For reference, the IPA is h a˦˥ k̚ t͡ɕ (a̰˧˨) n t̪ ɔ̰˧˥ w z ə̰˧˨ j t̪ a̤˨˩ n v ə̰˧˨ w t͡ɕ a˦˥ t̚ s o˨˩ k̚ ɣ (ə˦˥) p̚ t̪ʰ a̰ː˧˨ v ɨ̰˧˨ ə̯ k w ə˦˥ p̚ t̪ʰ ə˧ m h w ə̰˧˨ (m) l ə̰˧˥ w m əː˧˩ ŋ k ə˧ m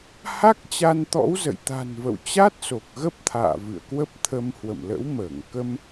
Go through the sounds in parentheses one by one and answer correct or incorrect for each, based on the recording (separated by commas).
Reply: incorrect, correct, correct